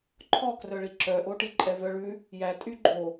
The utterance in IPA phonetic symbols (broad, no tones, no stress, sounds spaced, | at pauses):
ǃʰ ɔ k r œ ɭ i ǁ œ ʔ o ʈ i ǃʼ ɛ v œ ɭ ʉ | j æ tʼ y ɡ͡ǃ o